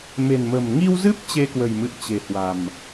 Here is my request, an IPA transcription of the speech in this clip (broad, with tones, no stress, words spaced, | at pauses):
me̤˨˩nmə̤˨˩m ŋi˧wzɨ˦˥p̚ t͡ɕe˧kwə̤˨˩jmɨ̰˧˨ə̯ t͡ɕe̤˨˩hwa̤˨˩m